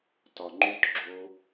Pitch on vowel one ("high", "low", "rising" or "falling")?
low